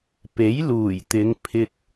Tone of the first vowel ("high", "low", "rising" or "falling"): rising